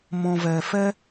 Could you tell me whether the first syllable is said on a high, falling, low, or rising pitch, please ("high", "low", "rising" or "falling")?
low